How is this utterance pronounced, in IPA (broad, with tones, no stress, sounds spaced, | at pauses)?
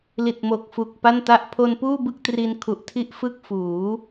l i˨˩ t̚ m o˨˩ k̚ f u˨˩ k̚ p a˥˩ n t a˥˩ ʔ pʰ o˧ n p uː˥˩ b ɯ˥˩ k̚ t r i˧ n kʰ u˨˩ ʔ tʰ i˥˩ ʔ f ɯ˥˩ k̚ f uː˩˦